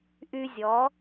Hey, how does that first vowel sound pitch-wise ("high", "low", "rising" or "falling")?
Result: high